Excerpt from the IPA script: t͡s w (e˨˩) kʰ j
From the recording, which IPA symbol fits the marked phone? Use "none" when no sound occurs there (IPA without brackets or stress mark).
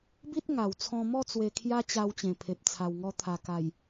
e˧